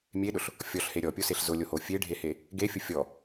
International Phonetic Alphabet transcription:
mʲ e ɗ ʊ ɬ | fʲ ɔ ɬ h e ɾʲ ɔ pʲ o s e ɬ z ʊ lʲ o h o fʲ e ɖʱ e h e | ɡ e fʲ ʊ fʲ ɔ

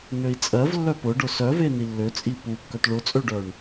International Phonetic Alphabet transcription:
n ø i̯ t͡sʼ ɜ v lː œ p ʊ ɖ ʊ s œ v e n i lː ø t͡sʼ i p u kː œ t ɭ ʊ t͡sʼ ø ɖ œ ɳ

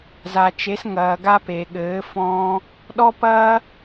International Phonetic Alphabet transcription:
z a˨ t͡ʃ e˨˦ s ŋ ɐː˨ ɡ a˧ p e˨ ɠ ɘː˨˦ f ɔ̃ː˧ | ɗ ɔ˦ p ɐː˦

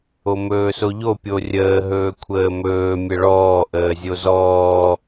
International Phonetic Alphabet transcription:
o m ɵː s o ʎ o pʲ o rʲ əː ɦ ɵː kʷʰ əː m ɵː mʲ ə ɭ ɔː ʔ əː zʲ o z ɔː

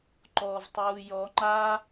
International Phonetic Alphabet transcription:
ǃ ɔ v tˤ uː j ɔ ŋ͡ǃ a

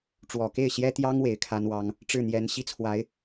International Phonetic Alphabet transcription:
ʈ͡ʂ w ɔ˨˩ k e˥˩ ɪ̯ ɕ j ɛ˥ t̪ j ɑ˥ ŋ w e˧˥ ɪ̯ kʰ a˥ n w ɑ˥ ŋ | ʈ͡ʂ ɻ̩˥˩ n̪ j ɛ˧˥ n ɕ i˥ t͡sʰ w a˧˥ ɪ̯

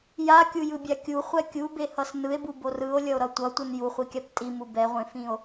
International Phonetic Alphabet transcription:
j a kʲ u j ɯ bʲ a kʲ u χʷ ɛ kʲ u b e h ʌ s n ɯ e̯ b u b o r ɯ o̯ lʲ ʌ o̯ ɾ ʌ tʷ ʌ tʷ ɯ n j u χʷ i kʲ a p tʼ i m u b ɛ ʁʷ ẽ f ĩ o̯

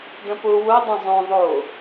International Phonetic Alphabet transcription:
d ə̃ p ʊ w ʊ dˤ ə̃ zˤ õ ðˤ o

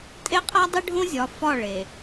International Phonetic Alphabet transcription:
tʼ e˦ qʼ æ˦ dˤ i˦ ɖʱ õ˦ zʲ ɒ˨ f ɒ˦˨ ɭ e˨

